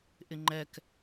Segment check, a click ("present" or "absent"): present